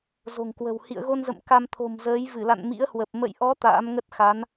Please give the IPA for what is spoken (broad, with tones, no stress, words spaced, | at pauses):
zo̤˨˩ŋkwə̤˨˩w hḭ˧˨ə̯ɣo˧nzə̰˧˨m ka˧mt̪ʰo̤˨˩mzəː˨˦j vɨ˧˩la̰˧˨n mḭ˧˥ə̯hwə˨˩p̚ mə̰˧˨jʔɔ˨˦ t̪a̰ː˧˥mŋə˦˥t̚xa˨˦n